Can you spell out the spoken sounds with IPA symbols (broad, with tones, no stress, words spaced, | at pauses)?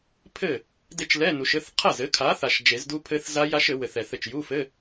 pʰɘ˥˩ | de˥˩t͡ʃlɛ˧˥˧nu˨ʃɘ˧˥˧θ qʰɐ˥˩zɘ˨˥kʰa˨˥θa˨ʃ d͡ʒe˨˩˦zdu˦˥pʰɘ˦˥θ za˦˥ ja˦˥ʃɘ˨˩˦wɘ˨θ ɛ˨θɘ˥˩t͡ʃ ju˧˥˧fɘ˧˥˧